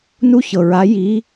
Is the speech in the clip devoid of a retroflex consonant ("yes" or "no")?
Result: yes